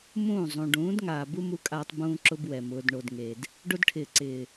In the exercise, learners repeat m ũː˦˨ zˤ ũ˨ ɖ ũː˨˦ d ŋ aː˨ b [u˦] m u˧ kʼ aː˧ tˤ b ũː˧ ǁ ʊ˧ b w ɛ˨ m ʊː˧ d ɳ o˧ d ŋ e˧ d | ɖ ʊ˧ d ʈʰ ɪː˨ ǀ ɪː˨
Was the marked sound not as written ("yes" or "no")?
no